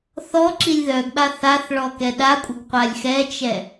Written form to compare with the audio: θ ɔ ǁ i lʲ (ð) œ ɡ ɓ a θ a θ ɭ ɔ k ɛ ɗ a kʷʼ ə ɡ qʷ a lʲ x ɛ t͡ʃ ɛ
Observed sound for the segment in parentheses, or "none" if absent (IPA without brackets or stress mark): ð